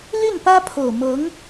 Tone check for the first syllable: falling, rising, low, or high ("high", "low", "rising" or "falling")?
falling